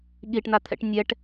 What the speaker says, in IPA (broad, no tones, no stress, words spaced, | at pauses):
ɠiʈn̪at̪ʰɛ̰ʈ nʲɛʈ